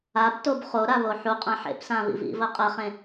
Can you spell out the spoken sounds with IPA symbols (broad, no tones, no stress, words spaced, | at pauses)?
abtob χoɾaβo ħuqʼã ħḛpsãβḭ vḭvɐ qʼɐχẽ